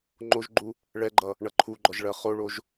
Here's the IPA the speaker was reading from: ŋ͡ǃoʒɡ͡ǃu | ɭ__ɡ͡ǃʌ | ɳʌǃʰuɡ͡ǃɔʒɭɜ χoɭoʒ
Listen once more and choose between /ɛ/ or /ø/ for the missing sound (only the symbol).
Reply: ɛ